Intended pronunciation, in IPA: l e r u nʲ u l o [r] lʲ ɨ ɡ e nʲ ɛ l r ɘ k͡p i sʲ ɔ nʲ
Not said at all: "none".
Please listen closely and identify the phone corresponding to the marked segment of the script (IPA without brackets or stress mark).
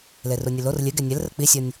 r